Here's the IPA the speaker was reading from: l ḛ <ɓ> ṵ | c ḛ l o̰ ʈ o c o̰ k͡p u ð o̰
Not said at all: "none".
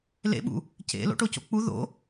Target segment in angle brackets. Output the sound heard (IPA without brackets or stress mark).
ɓ